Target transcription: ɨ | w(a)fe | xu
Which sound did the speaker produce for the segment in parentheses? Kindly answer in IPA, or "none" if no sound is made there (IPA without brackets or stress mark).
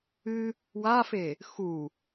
a